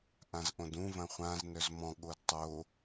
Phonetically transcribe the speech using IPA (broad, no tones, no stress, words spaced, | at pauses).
ʔãzʔõdũ vɐ̃χʷãz nœzmɔ̃ ɠodtˤo